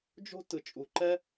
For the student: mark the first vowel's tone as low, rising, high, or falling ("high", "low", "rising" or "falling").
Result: high